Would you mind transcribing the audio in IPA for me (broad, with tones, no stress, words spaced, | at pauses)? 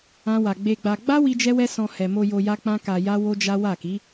ã˦wa˧ ɡ͡be˧ɡ͡ba˧ ɡ͡ba˦ wi˦d͡ʒɛ˦wɛ˦sɔ̃˧ hɛ˨mo˧ jo˧ja˦k͡pã˦ ka˧ja˦ wo˦d͡ʒa˦ wa˦˨ki˨˦